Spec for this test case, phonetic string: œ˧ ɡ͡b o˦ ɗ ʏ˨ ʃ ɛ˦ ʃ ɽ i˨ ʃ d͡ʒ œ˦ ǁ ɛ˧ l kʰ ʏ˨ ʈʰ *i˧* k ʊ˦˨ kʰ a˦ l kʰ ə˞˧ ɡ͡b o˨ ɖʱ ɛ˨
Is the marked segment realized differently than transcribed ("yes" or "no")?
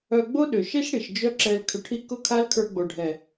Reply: no